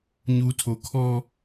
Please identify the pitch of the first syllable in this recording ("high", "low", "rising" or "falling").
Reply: high